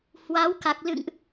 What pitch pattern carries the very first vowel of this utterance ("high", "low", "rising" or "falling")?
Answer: rising